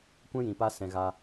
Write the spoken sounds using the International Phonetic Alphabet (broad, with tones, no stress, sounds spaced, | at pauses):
kʷ ɛ̃˦ j ĩ˨ p a˧ s ɛ̃˨ ɣ a˧